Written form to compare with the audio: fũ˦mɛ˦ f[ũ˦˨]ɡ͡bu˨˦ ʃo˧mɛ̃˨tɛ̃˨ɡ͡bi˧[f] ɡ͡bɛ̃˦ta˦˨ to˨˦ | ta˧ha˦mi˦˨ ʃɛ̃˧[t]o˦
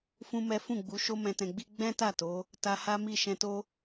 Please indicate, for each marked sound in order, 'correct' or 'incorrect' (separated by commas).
correct, incorrect, correct